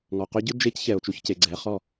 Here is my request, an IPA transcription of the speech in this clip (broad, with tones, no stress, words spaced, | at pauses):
ŋɔ˨qø˦ɟø˦ d͡ʒe˦cçɛ˨o̯ t͡ʃu˨çce˨ɡ͡ǀɛ˨˦χɔ˦˨